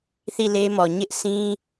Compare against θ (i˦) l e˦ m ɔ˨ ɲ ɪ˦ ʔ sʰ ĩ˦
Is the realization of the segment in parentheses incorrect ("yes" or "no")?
yes